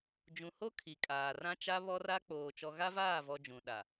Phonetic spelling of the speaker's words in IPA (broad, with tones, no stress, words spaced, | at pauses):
d͡ʒũ˨ho˦ kʰi˨kʼaː˨ rã˦t͡ʃa˦ βɔ˦ra˦k͡poː˨ t͡ʃɔ˨ɣa˦vaː˦˨vɔ˨ d͡ʒũ˨ɗa˨